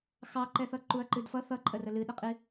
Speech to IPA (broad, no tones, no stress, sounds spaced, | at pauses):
x ɑ ǃ ɛ θ ʌ ǃ u ɐ̯ ǃ ɨ d f ʌ θ ʌ ǃʼ ə r ə l ɨ ɗ ə qʼ i